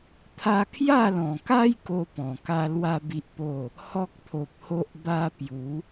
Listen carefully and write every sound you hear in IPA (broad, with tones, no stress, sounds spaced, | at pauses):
t̪ʰ a˧ kʰ j a˥˧ l ɔ̃˨˩ k a˦ j k o˦ p ɔ̃˨˩ k a˦ l w a˦ b i˦ ʔ p o˥˧ | h ɔ˦ k̚ t̪ʰ o˨ p̚ h o˦ ʔ b a˦ p j u˨˦